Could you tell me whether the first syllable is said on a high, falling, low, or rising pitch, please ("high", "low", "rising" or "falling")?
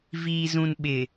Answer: low